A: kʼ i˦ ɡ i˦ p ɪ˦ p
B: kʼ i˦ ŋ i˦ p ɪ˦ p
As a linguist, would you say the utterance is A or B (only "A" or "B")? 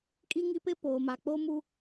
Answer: B